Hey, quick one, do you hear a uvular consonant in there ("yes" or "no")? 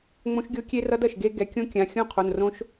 yes